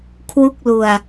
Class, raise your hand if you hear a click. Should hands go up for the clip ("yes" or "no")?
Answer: no